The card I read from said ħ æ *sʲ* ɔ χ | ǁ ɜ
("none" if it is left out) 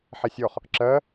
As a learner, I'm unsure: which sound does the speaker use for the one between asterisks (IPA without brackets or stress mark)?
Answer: sʲ